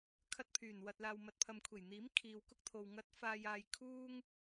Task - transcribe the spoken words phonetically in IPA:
kʰɐ˧t̚pʰyː˨˩nwɐ˨t̚ laː˨wmɐ˨t̚pʰɐ˨mkʷʰe˨˩j n̪iː˨˥m kʰiː˨wkʊ˥k̚t̪ʰo˨w ŋɐ˨˥t̚faː˨jaː˨j kʰuː˥ŋ

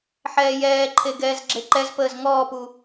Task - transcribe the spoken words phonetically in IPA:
ħɛːjɛːǃʰe ɡɛːzɡ͡ǁeǃɛzpəːz ŋɔːpu

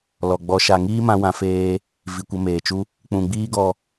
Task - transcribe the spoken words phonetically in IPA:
lɔ˨ɡ͡bɔ˧ʃa˧ ŋiː˦mã˧wã˧feː˧ | vi˨ kʷə˧meː˨t͡ʃu˦ | k͡pũ˨ɡ͡biː˦ ɡɔ˧

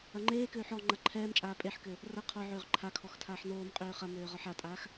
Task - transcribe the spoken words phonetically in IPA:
ɐŋ͡ǃeːkøːħ ɔŋ͡ǃɐ ǃʰɛːmt͡ʃʼaː pʼeħkø | rɐ qʰɔʕøːʁ ǃʰakʰɔx tʰaːħnoːmqʼøː χɐmøː ʁɒħatʼaːx

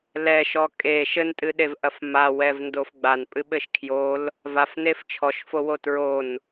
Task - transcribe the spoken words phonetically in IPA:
lɛʃɔ kʼe ʃɘntʼɨɗevʔɐf mawɛvndof ɡ͡banpʼɨɓɘʃ kʰjol | vafnef t͡ʃʰɔʃfowo tɹon

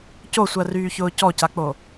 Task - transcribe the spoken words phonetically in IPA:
cosʷɜryːçʊː cɔcak͡po

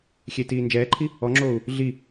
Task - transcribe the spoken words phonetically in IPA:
xʲetiː nd͡ʒɛːǃʰi | ɔŋ͡ǁoːu̯ | ɮi

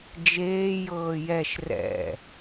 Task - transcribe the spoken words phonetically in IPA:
d͡ʒeː jɤːjɛʃ rɛ̰

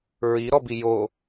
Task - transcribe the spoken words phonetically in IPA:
ɹiɾɔbi jo

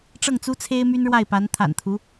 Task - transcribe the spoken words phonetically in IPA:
ʈ͡ʂɤ˥˩ŋt͡su˥t͡sʰe˥ɪ̯ my˥nɻwa˥˩ɪ̯pa˧˥n t̪ʰa̰˨˩nt̪ʰu˧˥

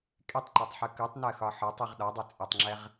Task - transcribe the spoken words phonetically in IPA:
kʼetˤǃotˤħɯ kɯtˤnɜxɒ ħɒtˤiʁ ɗɒdˤo t͡sʼɯtˤŋ͡ǁɛʁ

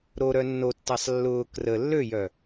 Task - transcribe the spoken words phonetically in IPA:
ɾoɾœ nːotːasˤ lːʊː krə lːøjœ

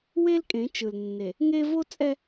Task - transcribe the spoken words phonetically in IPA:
we˦lkʼẽ˨˦t͡ʃɯ˨l nːe˨ | ŋe˦ vo˦t͡sʼɛ˦

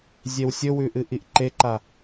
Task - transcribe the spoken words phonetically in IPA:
zʲewsʲɵwʉ ʔɨʔiʔǃeǃa

